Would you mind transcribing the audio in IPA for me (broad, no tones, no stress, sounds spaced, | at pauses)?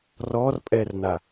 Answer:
r ɔ r pʼ ɛ r n a